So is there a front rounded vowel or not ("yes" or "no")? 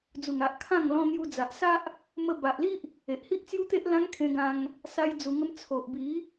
no